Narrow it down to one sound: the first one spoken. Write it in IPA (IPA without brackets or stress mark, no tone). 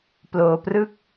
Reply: p